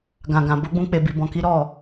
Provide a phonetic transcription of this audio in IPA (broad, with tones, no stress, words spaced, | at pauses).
ɡã˨ɡã˨bo˧ɡ͡bũ˧ k͡pe˧bi˧ bɔ̃˧ki˦ ɾɔ˦˨